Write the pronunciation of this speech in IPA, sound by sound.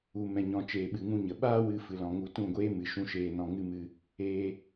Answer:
u˧ m ɛ̃˧ ɲ ɔ̃˧ t͡ʃ eː˧ ɓ ɨ˧ ŋ ũ˦ ɲ ə˨ ɓ aː˦ w ɨ˧ f ɨ˨ l ɔ̃˨ ŋ u˧ t ũ˦˨ ɡʷ eː˦ m ɨ˨ ʃ ũ˧ ʃ eː˨ n ɔ̃˨ ŋ ɨ˦ m ɨ˧ | eː˧

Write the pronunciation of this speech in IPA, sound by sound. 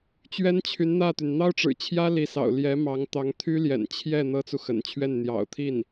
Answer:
t͡ɕ ɥ ɛ˥ n t͡ɕʰ y˧˥ n n̪ ä˥˩ t̪ y˩ n n̪ ɑ˥ ʊ̯ ʈ͡ʂ ɻ̩˨˩ t͡ɕʰ j ä˥ l i˧˥ s ɑ̰˨˩ ʊ̯ l j ɛ˧˥ m ɑ˧˥ ŋ t̪ ɑ˧˥ ŋ t̪ʰ y˥ l j ɛ̰˨˩ n t͡ɕʰ j ɛ˥˩ n̪ ɤ˥ t͡s u˨ x ə̰˨˩ n t͡ɕʰ ɥ ɛ˥˩ n n̪ j ɑ̰˨˩ ʊ̯ t̪ʰ i˥˩ n

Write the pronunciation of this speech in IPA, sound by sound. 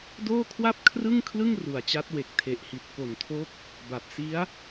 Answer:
d oː˥˩ kʰ w a˥˩ p̚ kʰ r ɯ˥˩ ŋ kʰ l ɯ˥˩ ŋ r u˨˩ a̯ t͡ɕ a˦˥ t̚ w e˨˩ k̚ tʰ e˨˩ ʔ h i˨˩ t̚ k o˨˩ n tʰ o˦˥ k̚ | b a˨˩ p̚ s i˦˥ a̯

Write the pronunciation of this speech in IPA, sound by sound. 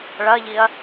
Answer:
ɭ ɐ ʎ i ɐ̯

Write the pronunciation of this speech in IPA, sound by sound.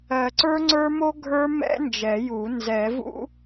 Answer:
ɜ˨˩˦ ǀ ə˞˦˥ ŋ͡ǀ ə˞˦˥ m o˦˥ ɡʱ ə˞˦˥ m ɛ̰˦˥ n d͡ʒ ɛ˨˩˦ j u˨˩˦ n z ɛ˨˩˦ v ṵ˦˥

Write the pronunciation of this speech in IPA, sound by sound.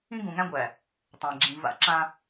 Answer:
ĩ˦ ɡ ũ˨ ŋ æ̃˦ ɡʷ æ˨ | tˤ æ̃˨ ɡ͡ǁ ĩ˨ v a̰˦ ǁ ã˦

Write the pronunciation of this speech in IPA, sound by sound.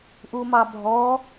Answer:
ʔ u m ɑ bʱ ɔ

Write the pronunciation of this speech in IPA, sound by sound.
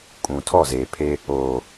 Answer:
kʼ ũ˨ tʰ ɔ˦˨ z eː˨ pʰ e˦ | oː˨

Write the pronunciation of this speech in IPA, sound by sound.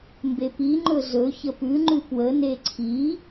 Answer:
m b e p i ŋ͡ǃ ɵ z ɵ ç ə p ʉ ŋ͡ǃ ʉ p w ə n e ǀʰ i

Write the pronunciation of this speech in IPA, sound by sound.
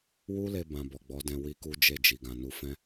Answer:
w u˦ l e˧ b ã˧ b ɔ˨ ɡ͡b ɔ˨˦ d ɛ̃˧ w i˦ k u˦ d͡ʒ e˦˨ d͡ʒ i˨ ɡ ã˨ n u˧ f ɛ̃˦

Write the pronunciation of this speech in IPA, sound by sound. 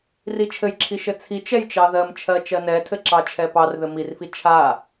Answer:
r i t͡ʃʰ ɘ j ǁʰ i ʃ ɘ t͡sʰ i t͡ʃ ɛ j t͡ʃ ɑ ð ɜ m t͡ʃʰ ɜ t͡ʃ ɜ n ɛ tʰ ɘ ǁ ɑ t͡ʃʰ ɛ p ɑ r ð ɘ m i r f i t͡ʃʰ a

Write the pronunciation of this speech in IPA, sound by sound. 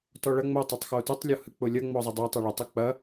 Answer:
t ɔ ɭ ɐ ŋ͡m o tˤ o tˤ x o t ʊ tˤ lʲ ɔ h ɨ k͡p ʊ lʲ ɐ ŋ͡m ɔ zˤ ɐ dˤ o tˤ ɯ ɭ ʊ tˤ ɯ k͡p ɐ

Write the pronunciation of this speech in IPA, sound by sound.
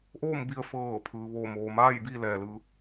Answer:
ʔ oː˥˨ m b i˧ ə̯ f ɤː˧˩ pʰ ɯː˩ ʋ oː˧˩ m oː˩ m aː˥˨ j b i˧ l ɛː˩ l ɯː˩˧

